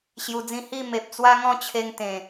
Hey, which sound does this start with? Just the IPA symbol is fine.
ɕ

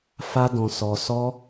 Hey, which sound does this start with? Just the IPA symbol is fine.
f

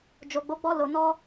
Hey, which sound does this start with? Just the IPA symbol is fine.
d͡ʒ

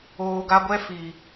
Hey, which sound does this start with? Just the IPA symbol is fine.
oː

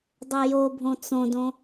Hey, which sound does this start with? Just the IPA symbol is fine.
dˤ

